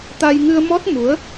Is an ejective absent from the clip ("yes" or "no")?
yes